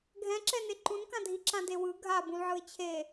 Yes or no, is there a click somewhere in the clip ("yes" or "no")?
yes